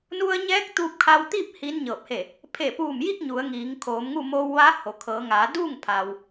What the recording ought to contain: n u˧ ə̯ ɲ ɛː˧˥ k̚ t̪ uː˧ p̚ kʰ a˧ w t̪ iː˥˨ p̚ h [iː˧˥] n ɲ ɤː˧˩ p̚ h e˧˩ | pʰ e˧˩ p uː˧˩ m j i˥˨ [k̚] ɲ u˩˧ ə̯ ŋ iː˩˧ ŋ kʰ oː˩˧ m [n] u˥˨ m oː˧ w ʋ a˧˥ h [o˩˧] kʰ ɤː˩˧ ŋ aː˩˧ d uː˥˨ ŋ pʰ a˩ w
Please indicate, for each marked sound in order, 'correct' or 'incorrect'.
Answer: correct, correct, incorrect: ŋ, incorrect: o˩

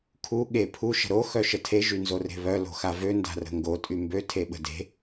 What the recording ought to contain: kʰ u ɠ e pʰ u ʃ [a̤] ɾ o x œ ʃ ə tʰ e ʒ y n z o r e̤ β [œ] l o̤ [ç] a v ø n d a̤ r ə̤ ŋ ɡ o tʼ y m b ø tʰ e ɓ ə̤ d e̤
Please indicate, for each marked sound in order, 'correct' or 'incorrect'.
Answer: incorrect: ə̤, correct, incorrect: x

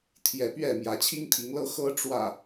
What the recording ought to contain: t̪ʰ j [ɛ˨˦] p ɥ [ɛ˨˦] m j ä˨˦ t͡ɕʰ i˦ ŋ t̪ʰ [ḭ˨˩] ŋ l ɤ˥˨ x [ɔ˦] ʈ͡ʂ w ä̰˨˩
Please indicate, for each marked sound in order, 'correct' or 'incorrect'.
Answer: correct, incorrect: ɛ˥˨, incorrect: i˨˦, incorrect: ɤ˦

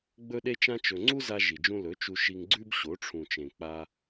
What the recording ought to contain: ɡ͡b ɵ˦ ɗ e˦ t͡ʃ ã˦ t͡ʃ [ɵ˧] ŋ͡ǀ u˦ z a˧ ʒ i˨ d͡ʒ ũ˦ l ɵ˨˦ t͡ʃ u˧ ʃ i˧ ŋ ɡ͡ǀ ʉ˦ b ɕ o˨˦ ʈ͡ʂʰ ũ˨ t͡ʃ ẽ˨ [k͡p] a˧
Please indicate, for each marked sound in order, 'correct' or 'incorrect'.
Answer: correct, correct

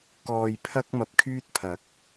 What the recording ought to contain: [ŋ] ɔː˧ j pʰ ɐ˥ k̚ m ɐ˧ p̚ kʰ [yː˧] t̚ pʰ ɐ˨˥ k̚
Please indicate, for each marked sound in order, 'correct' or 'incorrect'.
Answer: incorrect: k, incorrect: yː˥

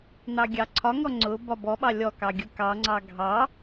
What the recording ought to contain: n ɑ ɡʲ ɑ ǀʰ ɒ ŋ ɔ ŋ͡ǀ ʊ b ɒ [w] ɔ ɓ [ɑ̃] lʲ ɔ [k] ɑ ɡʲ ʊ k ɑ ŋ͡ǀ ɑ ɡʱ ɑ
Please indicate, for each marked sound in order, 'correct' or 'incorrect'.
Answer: incorrect: b, incorrect: ɑ, correct

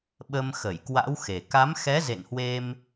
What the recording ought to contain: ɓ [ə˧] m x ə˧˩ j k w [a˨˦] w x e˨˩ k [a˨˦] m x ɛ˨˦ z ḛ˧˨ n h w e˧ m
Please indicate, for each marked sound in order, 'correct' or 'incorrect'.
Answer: correct, incorrect: a̰˧˥, correct

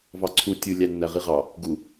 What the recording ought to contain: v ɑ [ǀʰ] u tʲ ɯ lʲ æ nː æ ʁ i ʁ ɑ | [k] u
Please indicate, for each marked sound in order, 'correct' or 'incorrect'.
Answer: correct, incorrect: ɡ

